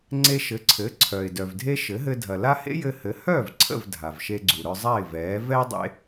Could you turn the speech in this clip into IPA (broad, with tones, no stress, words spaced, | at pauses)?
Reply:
ŋ͡ǀe˧ʃɘ˩˥ǀʰɘː˩˥ǀʰœː˩ɪ̯ dœ˩vdʱe˥ ʃɘ˩˥ɦɘ˧ dʱɐ˩la˥ hḛ˥jɘː˧ hɘ˩˥ hœː˥˩vǀʰə̰˥˩v dʱa˩vʃe˧ɡ͡ǀu˩ɾœ˧ zˤa˥˩ɪ̯vɛː˩˥ vɛ˥ɪ̯ dˤḛ˥